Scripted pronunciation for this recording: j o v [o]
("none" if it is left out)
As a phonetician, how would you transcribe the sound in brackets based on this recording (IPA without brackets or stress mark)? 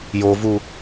u